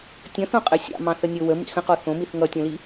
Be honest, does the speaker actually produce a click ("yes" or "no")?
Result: no